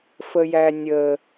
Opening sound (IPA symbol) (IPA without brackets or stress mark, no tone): f